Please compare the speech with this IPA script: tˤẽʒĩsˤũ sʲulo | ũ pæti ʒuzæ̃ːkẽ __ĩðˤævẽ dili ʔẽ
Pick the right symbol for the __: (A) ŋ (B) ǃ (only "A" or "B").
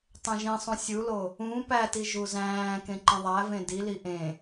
B